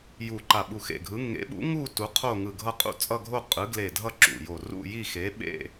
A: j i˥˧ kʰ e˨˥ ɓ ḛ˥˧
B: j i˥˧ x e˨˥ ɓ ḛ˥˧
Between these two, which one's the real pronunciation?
B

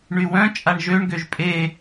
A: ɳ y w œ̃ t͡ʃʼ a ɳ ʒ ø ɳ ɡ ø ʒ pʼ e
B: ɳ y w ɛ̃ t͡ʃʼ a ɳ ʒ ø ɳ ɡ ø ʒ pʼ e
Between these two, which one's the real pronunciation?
A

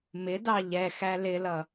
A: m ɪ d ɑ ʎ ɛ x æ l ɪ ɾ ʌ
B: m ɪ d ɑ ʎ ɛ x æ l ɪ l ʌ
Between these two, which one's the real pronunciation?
B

